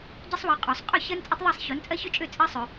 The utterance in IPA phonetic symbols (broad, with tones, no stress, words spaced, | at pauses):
ɟɛ˥sˤwɜ˨˥qʼuː˨˩˦sˤ qʼɵ˥˩ çɜ˥nt͡sʼɵ˥tˤðˤɛ˥˩sˤ ço˨˥nt͡sʼɜ˥çø˥t͡ʃʼø˥˩ t͡sʼɜ˥sˤɵ˨˩˦